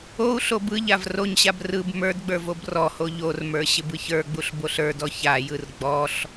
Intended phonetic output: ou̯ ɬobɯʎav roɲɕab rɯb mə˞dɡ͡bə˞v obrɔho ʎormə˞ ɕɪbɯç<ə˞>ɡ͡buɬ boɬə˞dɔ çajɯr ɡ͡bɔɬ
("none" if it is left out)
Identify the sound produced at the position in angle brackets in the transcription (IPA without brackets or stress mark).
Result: ə˞